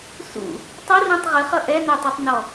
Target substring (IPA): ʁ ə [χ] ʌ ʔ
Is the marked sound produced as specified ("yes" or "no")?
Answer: yes